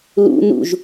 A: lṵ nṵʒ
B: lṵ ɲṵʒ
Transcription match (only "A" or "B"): A